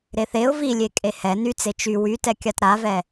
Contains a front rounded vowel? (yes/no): yes